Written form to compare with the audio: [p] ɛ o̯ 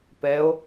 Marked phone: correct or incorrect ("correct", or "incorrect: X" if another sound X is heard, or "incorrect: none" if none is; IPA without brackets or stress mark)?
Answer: correct